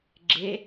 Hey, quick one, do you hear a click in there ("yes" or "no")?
yes